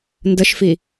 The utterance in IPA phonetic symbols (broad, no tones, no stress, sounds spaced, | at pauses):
n d ə ʃ f i